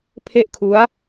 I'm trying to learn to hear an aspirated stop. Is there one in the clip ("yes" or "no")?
yes